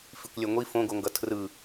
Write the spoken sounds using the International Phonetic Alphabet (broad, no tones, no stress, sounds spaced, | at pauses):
f i kʷ lʲ ɛ ŋʷ i f õ ɡ o ŋ ɡ ʌ tʰ r ɯ